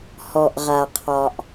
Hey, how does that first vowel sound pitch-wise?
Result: low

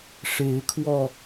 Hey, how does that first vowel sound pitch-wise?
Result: rising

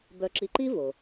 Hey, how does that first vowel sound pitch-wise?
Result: low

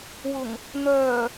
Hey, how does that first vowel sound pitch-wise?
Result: low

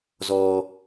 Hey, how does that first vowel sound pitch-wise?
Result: low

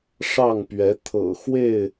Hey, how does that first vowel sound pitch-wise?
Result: falling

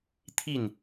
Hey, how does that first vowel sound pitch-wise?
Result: falling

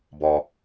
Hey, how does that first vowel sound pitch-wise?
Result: low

